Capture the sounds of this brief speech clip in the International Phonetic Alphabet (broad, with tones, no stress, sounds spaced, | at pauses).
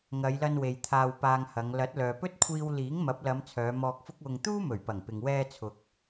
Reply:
ŋ ɐ˨˧ j l ɐ˧ n w e˨ j t̪ʰ aː˧ w p aː˧ ŋ h ɐ˨˧ ŋ l ɐ˨˥ t̚ l œː˨ p ɵ˥ t̚ kʷʰ iː˧ w l iː˨˥ ŋ m ɐ˨˥ p̚ l ɐ˨˧ m t͡sʰ œː˨˧ m ɔː˧ k̚ f ʊ˥ k̚ w ʊ˧ ŋ t̪ uː˥ m ɵ˨˩ ɥ p ɐ˨˩ ŋ p ɪ˨ ŋ w ɛː˧ t͡sʰ ʊ˨ k̚